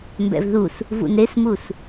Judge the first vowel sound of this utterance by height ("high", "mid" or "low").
mid